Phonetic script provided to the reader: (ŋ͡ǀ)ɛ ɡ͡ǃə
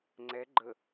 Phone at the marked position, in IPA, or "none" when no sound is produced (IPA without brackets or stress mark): ŋ͡ǀ